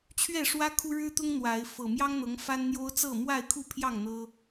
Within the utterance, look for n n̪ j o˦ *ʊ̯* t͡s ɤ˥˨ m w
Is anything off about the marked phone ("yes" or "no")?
no